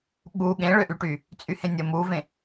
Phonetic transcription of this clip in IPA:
ɠ u ɠ ẽ ɭ ø ʔ y ʈ y | t͡sʼ y h ẽ nʲ ə m u v ẽ

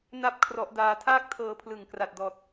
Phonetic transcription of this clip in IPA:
n a˥˩ p̚ kʰ r ɔ˦˥ ʔ d aː˦˥ tʰ aː˥˩ k̚ tʰ ɤː˧ pʰ l ɯ˨˩ ŋ k r a˨˩ t̚ d ɔː˨˩ t̚

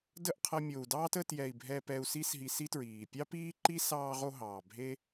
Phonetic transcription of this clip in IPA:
d ə˦˨ ʔ qʰ ɐ˧ mʲ o˨ u̯ d ɑː˦ t ə˧ t j ɛ˨ i̯ bʱ ɛ˧ p ɛ˧ u̯ s i˦ s ɦ i˧ s i˦ t ɹ iː˨ pʲ ɑ˦ p iː˦ ǃ i˦ s ɑː˧ ʁ o˧ ɦ ɑː˨ bʱ e˦

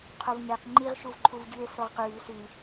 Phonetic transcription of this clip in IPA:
qʰ o v ŋ e q ŋ͡ǃ i ʁ ʃ u v ǃʰ u v ɟ ʉ e̯ s o ʁ q ʉː s ʉ

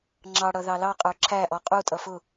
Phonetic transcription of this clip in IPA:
ŋ͡ǁ ɑ ɽ ʌ ð ɑ l ɑ qʼ ə˞ ǁʰ æ ʔ ɔ qʼ u tʼ ʌ f ʊ

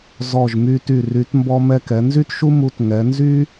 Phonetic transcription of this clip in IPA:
z ɔ˧˩ ʒ m y˧ t y˧˩ r y˩˧ t m b ɔ˧ m ɛ˧ k ɛ˩˧ n z y˥ t ʃ u˥ m u˧ t ŋ ɛ˩˧ n z y˥

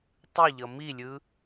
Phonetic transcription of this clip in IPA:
tˤ ɯ ʎ ʌ m i lʲ ɯ

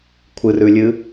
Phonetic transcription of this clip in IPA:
kʷʰ ɨ r ʉ lʲ ɨ

